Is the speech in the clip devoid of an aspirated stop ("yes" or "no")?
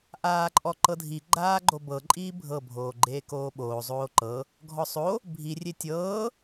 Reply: yes